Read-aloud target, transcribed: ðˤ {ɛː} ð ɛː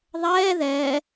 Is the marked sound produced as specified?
yes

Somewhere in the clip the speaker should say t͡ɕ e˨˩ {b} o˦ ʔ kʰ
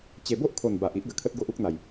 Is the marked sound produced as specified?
yes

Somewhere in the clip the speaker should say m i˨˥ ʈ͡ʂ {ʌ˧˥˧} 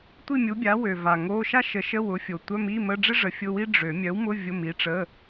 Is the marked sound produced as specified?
no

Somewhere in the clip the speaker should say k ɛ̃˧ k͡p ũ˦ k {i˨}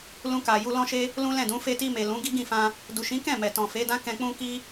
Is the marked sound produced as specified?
no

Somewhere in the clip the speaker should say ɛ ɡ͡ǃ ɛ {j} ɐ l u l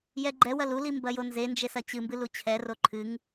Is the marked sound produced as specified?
no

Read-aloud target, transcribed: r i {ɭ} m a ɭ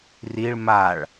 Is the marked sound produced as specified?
yes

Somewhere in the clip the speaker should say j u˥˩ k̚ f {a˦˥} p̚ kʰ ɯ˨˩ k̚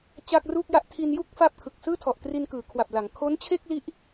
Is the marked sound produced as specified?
no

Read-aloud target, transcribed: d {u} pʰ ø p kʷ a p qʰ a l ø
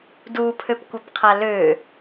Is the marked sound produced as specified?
yes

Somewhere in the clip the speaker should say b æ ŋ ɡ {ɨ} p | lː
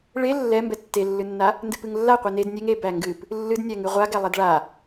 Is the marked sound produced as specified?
yes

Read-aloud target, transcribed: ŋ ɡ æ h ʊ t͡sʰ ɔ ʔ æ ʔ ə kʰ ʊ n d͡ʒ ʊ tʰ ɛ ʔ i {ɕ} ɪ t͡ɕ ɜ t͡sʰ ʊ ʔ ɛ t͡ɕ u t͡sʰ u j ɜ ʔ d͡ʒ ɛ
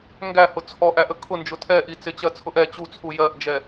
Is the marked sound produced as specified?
no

